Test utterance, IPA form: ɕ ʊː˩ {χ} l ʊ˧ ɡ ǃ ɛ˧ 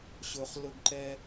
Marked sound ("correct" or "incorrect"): correct